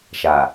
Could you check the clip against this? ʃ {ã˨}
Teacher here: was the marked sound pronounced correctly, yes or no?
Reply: no